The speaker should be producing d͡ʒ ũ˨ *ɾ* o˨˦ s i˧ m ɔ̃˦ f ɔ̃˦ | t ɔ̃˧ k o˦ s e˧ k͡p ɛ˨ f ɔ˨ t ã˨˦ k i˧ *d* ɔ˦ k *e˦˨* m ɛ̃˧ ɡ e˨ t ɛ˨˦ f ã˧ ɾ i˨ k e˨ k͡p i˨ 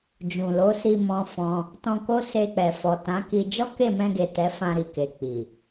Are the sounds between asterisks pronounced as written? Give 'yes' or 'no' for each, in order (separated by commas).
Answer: no, no, yes